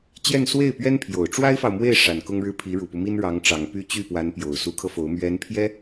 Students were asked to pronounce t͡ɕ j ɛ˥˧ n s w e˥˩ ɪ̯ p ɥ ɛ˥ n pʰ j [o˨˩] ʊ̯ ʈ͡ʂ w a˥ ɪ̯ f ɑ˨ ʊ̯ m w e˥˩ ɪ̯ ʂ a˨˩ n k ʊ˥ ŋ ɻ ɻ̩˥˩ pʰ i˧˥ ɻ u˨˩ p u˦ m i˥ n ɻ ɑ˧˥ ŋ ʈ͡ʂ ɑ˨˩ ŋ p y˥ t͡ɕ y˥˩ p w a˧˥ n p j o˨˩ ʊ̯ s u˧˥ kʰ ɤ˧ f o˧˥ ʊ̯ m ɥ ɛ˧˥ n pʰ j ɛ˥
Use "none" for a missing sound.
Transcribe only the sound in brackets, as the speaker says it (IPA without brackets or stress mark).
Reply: o˨˩